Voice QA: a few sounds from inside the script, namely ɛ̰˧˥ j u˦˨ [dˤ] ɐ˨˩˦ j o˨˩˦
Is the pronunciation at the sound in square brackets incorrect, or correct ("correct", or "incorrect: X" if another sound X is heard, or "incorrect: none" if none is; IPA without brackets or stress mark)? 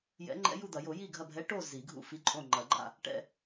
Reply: incorrect: d̪